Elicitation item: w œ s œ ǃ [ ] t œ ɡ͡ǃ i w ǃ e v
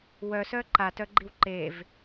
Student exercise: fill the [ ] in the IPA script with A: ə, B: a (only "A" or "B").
B